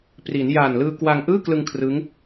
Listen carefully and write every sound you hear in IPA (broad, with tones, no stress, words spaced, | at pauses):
pri˩˦n ja˨˩n lɯː˧ kwa˧ŋ ʔɯː˥˩klɯ˧ŋ kʰrɯ˦˥ŋ